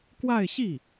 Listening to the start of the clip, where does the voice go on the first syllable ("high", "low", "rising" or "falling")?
falling